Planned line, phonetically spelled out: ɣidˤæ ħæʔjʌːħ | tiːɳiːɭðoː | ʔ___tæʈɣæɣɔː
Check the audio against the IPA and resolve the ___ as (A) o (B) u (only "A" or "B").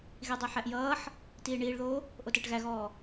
A